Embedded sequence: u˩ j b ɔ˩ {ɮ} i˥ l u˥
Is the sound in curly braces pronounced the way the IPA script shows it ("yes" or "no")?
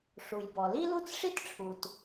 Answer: no